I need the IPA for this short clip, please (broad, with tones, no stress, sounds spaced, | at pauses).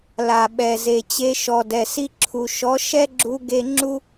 l a˨ ɓ ɛ˨ z e˨ t͡ɕ e˧ ʃ ɔ˨ d ɛ˨ s i˧ ǁʰ u˨ ʃ ɔ˨˦ ʃ ɛ˦ ɡ͡ǁ u˧ ɡ e˦ ŋ͡ǁ u˦